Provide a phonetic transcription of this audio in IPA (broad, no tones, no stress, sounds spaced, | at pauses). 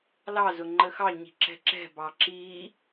l ɑ z ʊ ŋ͡ǃ ə x ɑ ɲ i̤ ǁ ɛ̤ ǁ ɛ̤ b ɑ ǁ i